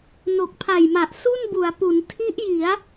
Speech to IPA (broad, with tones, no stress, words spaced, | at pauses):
no˨˩k̚pʰa˨˩jma˨˩ʔ su˥˩nbu˩˦a̯pu˩˦n tʰi˦˥ʔji˩˦a̯